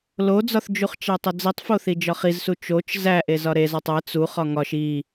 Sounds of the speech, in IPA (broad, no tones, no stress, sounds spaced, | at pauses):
l o d͡z ɒ θ d͡ʒ u χ t͡ʃ æ tˤ o d͡z i tˤ f o θ i d͡ʒ ɒ χ i z s u t͡ʃ o t͡ʃ z æ ʔ e z ɒ ɾ e z ɒ tˤ æ t͡s u χ ɒ ŋ ɒ ʃ i